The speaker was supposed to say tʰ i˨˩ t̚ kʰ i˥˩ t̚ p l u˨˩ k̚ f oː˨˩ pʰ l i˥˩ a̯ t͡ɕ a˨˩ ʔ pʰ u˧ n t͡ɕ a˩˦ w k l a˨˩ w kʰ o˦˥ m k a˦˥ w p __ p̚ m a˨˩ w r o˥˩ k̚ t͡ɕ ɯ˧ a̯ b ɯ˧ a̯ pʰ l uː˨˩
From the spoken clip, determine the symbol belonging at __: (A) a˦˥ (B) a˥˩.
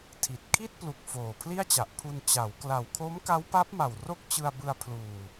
A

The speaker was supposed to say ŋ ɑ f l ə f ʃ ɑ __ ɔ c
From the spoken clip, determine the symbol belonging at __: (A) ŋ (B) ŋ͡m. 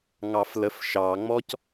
B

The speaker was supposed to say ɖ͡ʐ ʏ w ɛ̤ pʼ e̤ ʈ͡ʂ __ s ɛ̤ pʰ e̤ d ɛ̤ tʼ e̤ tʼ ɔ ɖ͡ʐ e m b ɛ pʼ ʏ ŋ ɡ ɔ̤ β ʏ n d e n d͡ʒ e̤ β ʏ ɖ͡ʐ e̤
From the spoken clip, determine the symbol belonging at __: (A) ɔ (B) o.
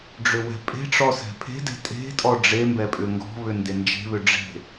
A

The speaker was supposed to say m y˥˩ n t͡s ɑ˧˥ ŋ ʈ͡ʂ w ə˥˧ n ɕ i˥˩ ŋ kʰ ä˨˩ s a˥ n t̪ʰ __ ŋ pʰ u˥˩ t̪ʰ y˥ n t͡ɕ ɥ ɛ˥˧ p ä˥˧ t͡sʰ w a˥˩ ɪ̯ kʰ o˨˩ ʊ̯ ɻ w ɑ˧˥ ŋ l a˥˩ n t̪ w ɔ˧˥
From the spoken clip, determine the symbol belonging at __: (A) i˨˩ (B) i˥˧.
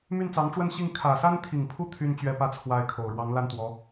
A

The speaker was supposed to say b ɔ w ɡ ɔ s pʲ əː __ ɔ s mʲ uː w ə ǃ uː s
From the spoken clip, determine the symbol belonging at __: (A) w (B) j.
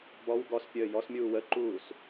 B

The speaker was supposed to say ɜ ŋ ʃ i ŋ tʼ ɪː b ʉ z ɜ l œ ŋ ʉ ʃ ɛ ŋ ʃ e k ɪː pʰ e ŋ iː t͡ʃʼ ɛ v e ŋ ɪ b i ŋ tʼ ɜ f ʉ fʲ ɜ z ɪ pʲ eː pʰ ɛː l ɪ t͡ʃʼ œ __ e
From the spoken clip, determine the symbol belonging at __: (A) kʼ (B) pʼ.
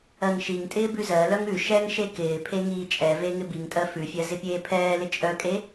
A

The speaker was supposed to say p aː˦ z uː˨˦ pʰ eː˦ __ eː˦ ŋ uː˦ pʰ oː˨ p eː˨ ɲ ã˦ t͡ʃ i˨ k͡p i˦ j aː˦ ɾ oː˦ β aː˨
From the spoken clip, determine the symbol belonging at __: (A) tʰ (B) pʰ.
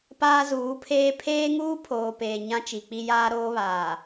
B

